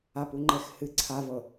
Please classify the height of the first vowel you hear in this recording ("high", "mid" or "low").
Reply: low